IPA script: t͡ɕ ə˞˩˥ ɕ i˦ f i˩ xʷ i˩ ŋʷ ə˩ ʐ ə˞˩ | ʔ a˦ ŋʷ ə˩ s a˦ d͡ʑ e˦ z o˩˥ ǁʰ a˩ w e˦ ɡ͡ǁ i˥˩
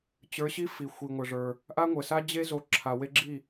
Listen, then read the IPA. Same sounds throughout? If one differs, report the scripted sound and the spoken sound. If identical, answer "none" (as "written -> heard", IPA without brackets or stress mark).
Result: none